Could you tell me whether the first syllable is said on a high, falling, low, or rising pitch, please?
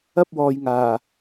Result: high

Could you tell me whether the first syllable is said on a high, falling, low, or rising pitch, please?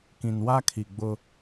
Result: low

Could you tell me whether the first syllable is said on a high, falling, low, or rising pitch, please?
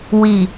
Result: low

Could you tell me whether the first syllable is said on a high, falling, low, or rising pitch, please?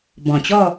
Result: low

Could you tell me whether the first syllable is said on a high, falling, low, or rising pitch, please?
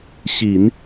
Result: low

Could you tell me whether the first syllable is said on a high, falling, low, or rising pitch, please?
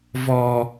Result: low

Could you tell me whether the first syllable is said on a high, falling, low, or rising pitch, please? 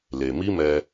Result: low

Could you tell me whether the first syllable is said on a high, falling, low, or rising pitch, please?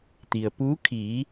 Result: low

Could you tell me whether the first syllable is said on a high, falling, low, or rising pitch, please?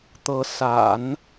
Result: rising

